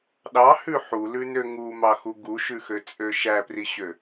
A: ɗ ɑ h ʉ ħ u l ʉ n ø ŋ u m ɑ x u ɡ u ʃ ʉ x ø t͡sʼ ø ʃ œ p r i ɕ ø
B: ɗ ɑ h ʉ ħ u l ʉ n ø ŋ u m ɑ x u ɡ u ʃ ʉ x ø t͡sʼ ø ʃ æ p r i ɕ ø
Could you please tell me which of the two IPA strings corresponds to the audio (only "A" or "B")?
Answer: B